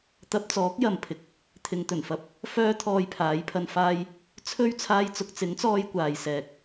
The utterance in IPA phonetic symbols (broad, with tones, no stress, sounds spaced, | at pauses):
t̪ ɐ˧ p̚ t͡s ɔː˨˥ k̚ j ɐ˨ m pʰ ɪ˨ k̚ | t̪ʰ ɪ˨ ŋ t̪ ɵ˨˩ n f ɐ˨ p̚ | f œː˥ t̪ʰ ɔː˧ j pʰ aː˨˥ j pʰ ɐ˧ n f aː˧ j | t͡sʰ ɵ˥ ɥ t͡sʰ aː˥ j t͡s ʊ˨˥ k̚ t͡s ɪ˨˥ ŋ t͡s ɔː˧ j kʷ aː˨ j s ɛː˨ k̚